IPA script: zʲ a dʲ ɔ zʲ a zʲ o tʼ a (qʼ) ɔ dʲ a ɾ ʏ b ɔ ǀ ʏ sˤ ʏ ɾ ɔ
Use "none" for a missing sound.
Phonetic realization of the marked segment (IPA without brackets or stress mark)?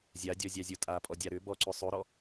pʼ